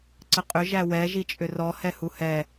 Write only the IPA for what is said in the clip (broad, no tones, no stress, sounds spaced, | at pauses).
ǀ ə qʼ ʏ ʒ æ w ɛ ʒ i t͡ʃʼ ʏ r ɔ h ɛ h u h ɛ